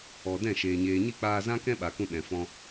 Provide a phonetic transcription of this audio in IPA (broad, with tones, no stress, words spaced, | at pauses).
ɔ˨ dɛ̃˦˨ʃeː˨ ɲeː˨ɲi˦˨k͡paː˧zã˦ kɛ̃˦ɓa˨kũ˧ ɗɛ̃˨fɔ̃˦